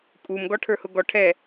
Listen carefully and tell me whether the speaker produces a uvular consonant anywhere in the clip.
no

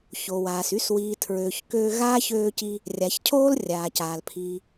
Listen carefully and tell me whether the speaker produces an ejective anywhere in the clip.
no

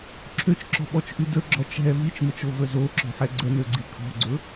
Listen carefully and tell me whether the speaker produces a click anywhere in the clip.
yes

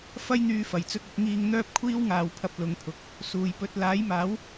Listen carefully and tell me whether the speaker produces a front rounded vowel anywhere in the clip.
yes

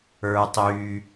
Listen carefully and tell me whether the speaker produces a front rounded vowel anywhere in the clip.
yes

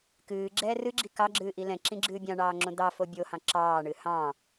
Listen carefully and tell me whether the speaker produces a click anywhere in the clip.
yes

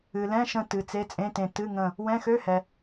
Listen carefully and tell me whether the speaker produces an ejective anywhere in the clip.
yes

